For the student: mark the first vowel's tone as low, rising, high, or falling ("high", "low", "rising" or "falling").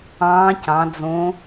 rising